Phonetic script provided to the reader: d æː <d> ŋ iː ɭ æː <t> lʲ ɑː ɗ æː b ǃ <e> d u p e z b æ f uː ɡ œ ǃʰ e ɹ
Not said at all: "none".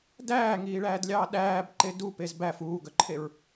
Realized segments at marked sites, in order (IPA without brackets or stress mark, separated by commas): none, d, e